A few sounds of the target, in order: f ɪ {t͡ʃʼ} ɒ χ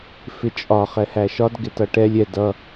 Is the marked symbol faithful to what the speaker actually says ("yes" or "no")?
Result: yes